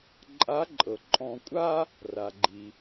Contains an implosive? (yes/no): no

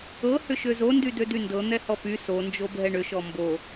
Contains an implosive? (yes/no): no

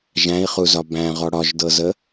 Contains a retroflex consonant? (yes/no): yes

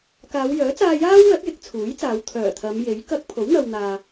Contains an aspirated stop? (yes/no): yes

